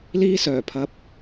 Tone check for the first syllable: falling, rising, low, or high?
high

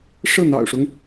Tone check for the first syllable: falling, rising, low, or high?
falling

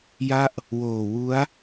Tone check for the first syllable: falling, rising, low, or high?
falling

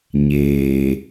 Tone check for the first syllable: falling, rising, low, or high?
low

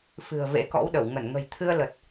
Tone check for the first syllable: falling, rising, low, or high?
low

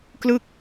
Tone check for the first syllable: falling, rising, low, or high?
falling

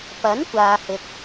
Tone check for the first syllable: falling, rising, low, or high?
rising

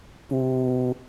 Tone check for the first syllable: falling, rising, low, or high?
low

